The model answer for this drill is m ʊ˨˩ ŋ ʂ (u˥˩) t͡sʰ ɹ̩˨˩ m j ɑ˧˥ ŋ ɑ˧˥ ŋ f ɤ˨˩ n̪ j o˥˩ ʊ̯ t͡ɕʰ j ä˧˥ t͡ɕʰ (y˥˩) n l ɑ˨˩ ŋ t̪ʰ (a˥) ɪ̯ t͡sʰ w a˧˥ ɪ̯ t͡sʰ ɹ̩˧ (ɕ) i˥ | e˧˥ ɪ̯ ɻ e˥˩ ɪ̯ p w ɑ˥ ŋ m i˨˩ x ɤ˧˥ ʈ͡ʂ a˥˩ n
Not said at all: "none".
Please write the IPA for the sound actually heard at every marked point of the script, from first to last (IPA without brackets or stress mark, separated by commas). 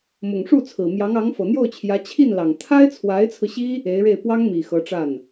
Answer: u˥˩, i˥˩, a˥, ɕ